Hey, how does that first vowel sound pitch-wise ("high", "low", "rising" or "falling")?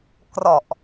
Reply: low